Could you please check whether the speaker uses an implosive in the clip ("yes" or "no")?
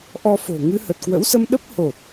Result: yes